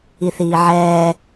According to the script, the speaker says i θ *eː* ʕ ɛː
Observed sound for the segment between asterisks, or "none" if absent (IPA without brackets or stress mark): iː